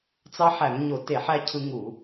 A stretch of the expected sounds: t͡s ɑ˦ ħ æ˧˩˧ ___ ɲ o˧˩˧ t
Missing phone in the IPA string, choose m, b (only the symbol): m